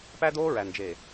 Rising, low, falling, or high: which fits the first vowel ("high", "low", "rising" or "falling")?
high